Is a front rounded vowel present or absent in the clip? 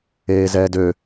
present